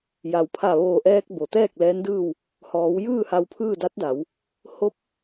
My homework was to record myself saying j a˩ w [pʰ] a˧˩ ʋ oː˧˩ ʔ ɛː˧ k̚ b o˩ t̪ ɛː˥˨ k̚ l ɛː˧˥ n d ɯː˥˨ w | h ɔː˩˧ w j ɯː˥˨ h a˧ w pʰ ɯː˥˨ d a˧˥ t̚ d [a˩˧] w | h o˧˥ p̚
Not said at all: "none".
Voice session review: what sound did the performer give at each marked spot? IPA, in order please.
pʰ, a˩˧

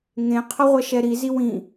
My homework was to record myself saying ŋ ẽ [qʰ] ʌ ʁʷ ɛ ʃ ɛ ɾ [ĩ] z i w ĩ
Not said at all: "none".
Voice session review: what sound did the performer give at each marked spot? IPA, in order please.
qʰ, i

